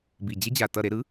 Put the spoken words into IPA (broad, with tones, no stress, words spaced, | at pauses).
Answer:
bi˨˩d͡ʑe˦˥d͡ʑa˨˩ tʌ˥˨ɾe˦˥ ɾɯ˩˥